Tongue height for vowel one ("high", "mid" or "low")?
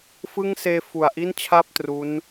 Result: high